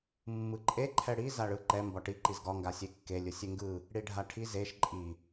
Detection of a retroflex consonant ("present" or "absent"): present